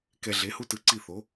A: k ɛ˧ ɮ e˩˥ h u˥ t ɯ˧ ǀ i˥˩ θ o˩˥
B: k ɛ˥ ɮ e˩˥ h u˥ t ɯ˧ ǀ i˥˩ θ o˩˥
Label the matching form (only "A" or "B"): A